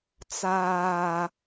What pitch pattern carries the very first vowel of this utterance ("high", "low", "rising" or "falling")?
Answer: low